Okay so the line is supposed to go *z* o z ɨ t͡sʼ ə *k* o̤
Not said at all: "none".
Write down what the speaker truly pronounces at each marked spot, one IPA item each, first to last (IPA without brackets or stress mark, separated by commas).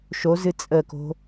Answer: ʃ, k